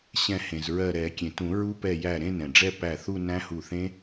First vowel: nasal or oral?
nasal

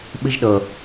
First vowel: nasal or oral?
oral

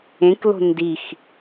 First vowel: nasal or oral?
nasal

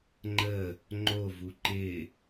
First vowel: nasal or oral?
oral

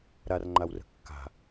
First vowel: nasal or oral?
oral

